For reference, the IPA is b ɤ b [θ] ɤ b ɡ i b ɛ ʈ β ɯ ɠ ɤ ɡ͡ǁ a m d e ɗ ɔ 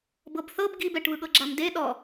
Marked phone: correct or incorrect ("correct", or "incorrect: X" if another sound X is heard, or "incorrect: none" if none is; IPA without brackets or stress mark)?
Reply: correct